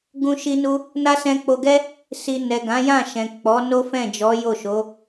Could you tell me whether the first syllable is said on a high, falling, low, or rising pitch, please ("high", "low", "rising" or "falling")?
high